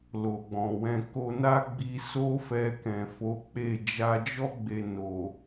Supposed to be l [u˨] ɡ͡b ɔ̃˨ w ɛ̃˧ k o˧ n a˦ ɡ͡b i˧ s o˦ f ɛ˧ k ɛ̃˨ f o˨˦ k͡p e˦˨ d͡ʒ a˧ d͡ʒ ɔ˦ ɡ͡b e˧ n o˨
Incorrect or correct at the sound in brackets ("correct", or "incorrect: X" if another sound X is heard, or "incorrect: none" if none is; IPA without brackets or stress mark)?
incorrect: o˨